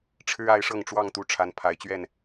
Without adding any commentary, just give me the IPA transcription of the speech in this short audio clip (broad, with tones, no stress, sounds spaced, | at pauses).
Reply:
ʈ͡ʂʰ ɻ̩˦ a˨˦ ɪ̯ ʂ ɤ˥˨ ŋ ʈ͡ʂ w ɑ˥˨ ŋ t̪ u˨˦ ʈ͡ʂʰ a˨˦ n pʰ a˨˦ ɪ̯ t͡ɕ ɥ ɛ˥˨ n